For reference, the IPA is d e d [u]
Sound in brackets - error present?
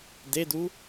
no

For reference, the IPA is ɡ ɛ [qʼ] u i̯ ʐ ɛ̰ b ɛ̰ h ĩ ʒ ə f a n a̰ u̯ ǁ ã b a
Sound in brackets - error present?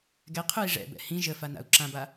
yes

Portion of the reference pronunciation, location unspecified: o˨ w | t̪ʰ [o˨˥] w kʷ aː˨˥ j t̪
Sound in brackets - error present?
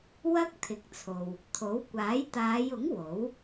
no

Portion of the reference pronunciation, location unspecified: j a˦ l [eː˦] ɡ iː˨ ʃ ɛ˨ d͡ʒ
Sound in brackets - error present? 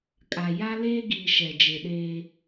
no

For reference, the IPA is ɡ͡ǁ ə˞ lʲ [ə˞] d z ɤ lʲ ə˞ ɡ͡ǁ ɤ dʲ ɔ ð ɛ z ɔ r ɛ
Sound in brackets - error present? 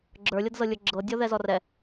yes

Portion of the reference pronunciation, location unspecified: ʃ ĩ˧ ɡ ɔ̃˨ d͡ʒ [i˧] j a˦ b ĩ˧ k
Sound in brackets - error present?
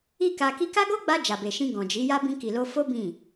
yes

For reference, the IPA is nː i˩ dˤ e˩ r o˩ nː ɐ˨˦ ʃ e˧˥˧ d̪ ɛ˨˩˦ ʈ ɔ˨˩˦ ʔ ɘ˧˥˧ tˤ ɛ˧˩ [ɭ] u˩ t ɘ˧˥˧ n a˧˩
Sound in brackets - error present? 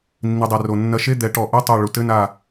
no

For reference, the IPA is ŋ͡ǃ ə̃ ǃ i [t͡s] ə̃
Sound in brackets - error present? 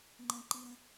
yes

